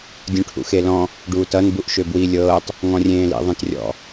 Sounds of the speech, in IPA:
dʲũʈʰṵxelɔ̃ | ɖuːtʌn buʔʃøbwi lʲɤːtˤ | ŋɔ̃rʲẽːlḭ ðˤẽtrʲɔ̰

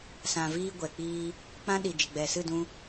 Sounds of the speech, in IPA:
sã˨viː˧ ɡʷɛ˨k͡piː˧ | k͡pã˦ɗi˨ d͡ʒə˨ɡ͡bɛ˨sɨ˦˨ dũ˧

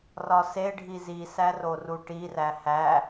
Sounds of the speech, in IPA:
rɒseɖʱi zisæro ruʈiræ hæ

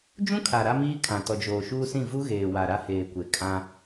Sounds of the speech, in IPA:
d͡ʒũ˦kʰa˨ ɾa˦miː˦kʰã˨ tɔ˨d͡ʒoː˨ʃuː˦sĩ˦˨ vu˦ɣeː˨wa˨ ɾa˦heː˨kʷe˨ kʼã˦

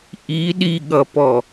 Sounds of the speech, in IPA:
ʔi ɗiɠʌpɔ

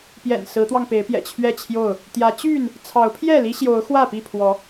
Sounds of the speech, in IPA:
pjɛ̰˨˩n sɹ̩˨˦t̪wɑ˧ŋpe˨˦ɪ̯pjɛ̰˨˩ t͡ɕʰɥɛ˥˨t͡ɕʰjo˥˨ʊ̯ | t̪jä˨˦t͡ɕy˥˨n | t͡sʰɑ˨˦ʊ̯pʰjɛ˥˨ li˦ɕjo˨˦ʊ̯ xwä˥˨pi˥˨pʰwɔ˨˦

